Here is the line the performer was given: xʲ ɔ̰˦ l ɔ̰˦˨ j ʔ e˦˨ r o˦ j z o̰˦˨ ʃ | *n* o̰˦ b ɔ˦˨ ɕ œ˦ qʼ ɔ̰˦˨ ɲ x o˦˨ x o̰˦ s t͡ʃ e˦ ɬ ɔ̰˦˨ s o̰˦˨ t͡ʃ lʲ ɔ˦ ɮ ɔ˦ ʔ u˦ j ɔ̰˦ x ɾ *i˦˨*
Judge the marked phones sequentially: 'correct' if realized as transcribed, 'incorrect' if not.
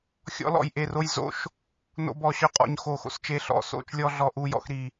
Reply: correct, correct

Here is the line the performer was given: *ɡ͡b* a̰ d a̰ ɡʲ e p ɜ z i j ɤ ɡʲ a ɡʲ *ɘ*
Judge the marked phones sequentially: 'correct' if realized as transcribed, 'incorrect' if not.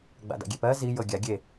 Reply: correct, incorrect: e

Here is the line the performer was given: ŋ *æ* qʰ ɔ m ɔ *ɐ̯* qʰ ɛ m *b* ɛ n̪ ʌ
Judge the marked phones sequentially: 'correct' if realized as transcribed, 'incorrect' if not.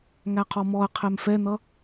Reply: correct, correct, incorrect: f

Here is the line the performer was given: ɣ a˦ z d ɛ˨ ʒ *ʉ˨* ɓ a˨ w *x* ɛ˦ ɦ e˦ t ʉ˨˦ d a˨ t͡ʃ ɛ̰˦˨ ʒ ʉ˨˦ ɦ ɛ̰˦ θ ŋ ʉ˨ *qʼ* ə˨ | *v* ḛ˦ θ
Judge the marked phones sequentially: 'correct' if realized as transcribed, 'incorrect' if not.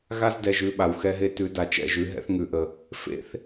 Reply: incorrect: ʉ˦˨, correct, incorrect: ʔ, incorrect: f

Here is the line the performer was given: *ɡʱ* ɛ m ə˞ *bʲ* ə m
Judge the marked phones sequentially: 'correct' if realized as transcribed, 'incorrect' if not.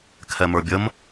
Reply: incorrect: kʰ, correct

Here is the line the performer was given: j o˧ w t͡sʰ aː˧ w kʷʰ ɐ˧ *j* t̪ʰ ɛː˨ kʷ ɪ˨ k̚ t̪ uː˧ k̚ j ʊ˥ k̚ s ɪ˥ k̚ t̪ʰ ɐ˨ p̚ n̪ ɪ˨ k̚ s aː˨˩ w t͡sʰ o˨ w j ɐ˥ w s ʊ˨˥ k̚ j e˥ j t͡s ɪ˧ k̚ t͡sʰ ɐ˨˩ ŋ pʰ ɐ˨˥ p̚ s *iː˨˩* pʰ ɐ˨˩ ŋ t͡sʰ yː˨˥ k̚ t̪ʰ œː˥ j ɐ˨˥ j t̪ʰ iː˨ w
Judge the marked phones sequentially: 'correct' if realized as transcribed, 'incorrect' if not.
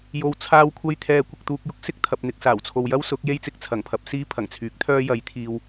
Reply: correct, incorrect: iː˧

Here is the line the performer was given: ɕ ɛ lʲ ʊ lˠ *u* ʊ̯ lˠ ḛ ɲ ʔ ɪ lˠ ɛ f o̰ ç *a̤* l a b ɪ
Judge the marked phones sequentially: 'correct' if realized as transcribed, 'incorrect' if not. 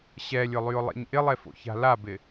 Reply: incorrect: y, correct

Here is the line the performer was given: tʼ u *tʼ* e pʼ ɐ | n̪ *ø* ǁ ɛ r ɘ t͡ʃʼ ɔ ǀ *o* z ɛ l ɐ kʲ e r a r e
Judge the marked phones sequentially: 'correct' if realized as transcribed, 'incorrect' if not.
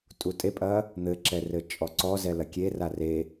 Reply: correct, incorrect: ɘ, incorrect: ɔ

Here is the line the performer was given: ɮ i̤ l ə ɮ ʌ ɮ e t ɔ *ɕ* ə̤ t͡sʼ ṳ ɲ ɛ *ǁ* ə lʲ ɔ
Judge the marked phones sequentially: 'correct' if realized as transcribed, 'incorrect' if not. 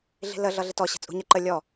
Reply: correct, incorrect: ǃ

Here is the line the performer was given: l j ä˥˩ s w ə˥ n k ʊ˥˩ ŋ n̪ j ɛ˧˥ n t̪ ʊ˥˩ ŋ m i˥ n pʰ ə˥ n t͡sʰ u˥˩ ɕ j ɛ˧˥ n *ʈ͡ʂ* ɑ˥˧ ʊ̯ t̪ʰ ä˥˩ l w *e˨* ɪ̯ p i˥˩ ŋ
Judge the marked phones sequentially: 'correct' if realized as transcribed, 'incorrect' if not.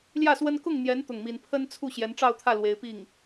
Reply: correct, incorrect: e˥

